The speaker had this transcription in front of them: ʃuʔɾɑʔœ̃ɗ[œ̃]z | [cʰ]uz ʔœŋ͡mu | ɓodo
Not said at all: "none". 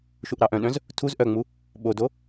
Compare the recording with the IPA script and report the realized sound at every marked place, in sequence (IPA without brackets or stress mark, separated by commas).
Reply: œ̃, tʰ